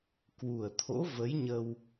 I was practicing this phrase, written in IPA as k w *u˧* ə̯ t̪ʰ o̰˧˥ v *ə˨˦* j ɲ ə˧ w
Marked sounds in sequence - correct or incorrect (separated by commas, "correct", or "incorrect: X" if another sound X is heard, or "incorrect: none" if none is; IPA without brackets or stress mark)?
incorrect: u˨˩, correct